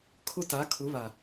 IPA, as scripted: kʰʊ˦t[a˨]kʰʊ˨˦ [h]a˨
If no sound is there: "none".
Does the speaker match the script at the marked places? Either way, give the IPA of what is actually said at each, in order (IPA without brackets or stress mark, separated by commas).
a˨˦, β